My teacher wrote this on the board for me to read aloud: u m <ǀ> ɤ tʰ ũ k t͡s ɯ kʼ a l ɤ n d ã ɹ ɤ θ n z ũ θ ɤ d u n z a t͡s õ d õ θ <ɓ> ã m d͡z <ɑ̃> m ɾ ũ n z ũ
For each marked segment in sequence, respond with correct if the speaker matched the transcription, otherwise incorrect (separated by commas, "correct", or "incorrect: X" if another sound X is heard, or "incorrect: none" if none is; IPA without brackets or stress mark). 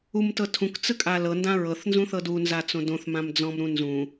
incorrect: t, incorrect: m, incorrect: ɔ̃